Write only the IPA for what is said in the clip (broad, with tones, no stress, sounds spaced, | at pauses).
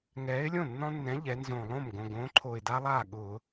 ŋ ɛː˨˥ ɪ̯ lʲ õ˥˩ nː ɔ̃˦ nː ɛ̃˨˥ ʎ ɛ˩˧ n z õ˨˩ lˠ õ˥˩ m ɡ õ˨˩ ɡ õː˨˥ ǃʰ o˨˩ ɪ̯ d a˦ lˠ aː˥˩ ɠ ʊː˧˩˧